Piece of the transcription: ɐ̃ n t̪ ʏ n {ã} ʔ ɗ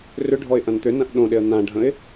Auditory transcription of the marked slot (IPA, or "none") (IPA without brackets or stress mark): ɐ̃